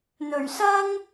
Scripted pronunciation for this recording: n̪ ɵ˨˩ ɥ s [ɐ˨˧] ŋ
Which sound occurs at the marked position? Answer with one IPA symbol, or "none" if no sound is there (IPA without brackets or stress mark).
ɐ˥